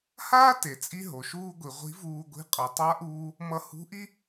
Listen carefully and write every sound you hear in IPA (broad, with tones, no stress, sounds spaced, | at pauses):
h aː˥ t e˩˧ t͡sʼ i˧ ɦ o˩ ʃ uː˥ ɡʷ i˩˧ ʁʷ i̤˧˥ v uː˧ ɡʷ i̤˧˥ qʼ ʌ˩˧ tˤ a˧˥ ʔ uː˧ | m ʌ˧ h ṳ˧˥ ʔ i˥